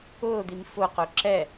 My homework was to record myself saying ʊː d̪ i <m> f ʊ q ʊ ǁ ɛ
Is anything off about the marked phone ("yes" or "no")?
no